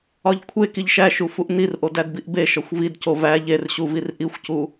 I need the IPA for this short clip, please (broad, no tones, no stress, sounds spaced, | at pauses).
ɒ ʎ kʷʰ e k i ʎ ʃ æ ʃ u f u ʔ n i r ʔ o d æ d b i ʔ b e ʃ ɒ xʷ v i d c o v æ ʎ e r ɕ u v i r ʔ i xʷ c u